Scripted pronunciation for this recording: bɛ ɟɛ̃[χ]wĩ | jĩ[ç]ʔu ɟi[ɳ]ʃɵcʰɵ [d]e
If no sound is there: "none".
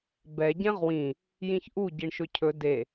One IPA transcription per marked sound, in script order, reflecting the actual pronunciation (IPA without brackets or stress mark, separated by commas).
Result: ʁ, ç, ɳ, d